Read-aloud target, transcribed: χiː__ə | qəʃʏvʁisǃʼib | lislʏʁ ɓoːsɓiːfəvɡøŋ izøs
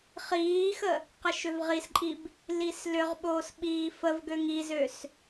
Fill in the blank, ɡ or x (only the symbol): x